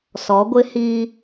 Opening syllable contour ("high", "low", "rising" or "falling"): rising